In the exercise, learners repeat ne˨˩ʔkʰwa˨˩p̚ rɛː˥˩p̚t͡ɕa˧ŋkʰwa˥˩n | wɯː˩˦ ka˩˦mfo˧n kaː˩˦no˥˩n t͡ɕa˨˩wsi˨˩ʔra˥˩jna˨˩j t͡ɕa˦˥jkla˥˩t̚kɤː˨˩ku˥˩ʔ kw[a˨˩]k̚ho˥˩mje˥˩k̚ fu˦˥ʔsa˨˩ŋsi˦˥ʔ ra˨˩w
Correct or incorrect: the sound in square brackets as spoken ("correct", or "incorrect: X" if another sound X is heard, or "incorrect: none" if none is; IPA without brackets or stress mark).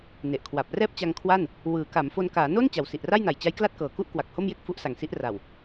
correct